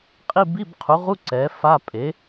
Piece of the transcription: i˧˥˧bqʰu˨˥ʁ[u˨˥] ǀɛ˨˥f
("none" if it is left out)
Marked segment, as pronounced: u˧˥˧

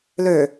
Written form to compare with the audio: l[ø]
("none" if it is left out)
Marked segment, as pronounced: ø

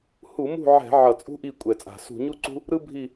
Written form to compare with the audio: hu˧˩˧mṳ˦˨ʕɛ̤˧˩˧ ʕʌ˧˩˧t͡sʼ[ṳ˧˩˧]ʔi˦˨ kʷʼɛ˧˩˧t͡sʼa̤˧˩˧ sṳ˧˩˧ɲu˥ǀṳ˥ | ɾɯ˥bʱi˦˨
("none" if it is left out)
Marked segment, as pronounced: ṳ˥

